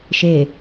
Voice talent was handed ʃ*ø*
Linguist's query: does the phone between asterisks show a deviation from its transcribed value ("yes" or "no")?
yes